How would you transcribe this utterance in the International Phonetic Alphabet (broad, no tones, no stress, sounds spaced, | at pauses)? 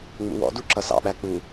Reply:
ŋ͡m ṵ w ɔ̰ d u ǁ ʌ s ɑ̰ ɓ æ k͡p u